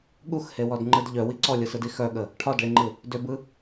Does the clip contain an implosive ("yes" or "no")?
yes